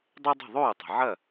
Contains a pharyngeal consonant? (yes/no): yes